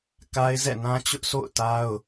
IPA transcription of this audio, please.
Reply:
k a˦ ɪ̯ z ɛ̰˦˨ n ã˦ t͡ɕ ʊ˦ ʔ sʰ o̰˦˨ ʊ̯ t a˦ ʊ̯

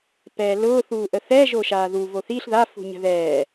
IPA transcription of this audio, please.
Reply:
p ɛː l ʊː θ uː ʔ ə θ ɛ ʒ o ʃ aː ð u v o θ i ɬ ð a f ṳ ɲ ə̤ ð ɛː

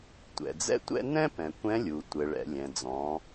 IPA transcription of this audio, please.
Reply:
tʷ ɛ̰˩ d͡z ɛ̰˥ tʷ ɛ̰˥ n ɛ̃˥ p ɛ̃˩ kʷ ɛ̃˧˥ lʲ u˩ tʷ ɘ˩ ɭ ɛ̰˩ lʲ ɛ̃˩ d͡z ɔ̃˩˧

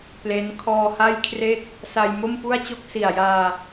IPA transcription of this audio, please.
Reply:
p l e˦˥ n kʰ ɔː˧ h a˥˩ j kʰ r e˥˩ k̚ | s a˧ j m o˥˩ m p u˥˩ a̯ t͡ɕ o˥˩ k̚ s i˨˩ a̯ j aː˧

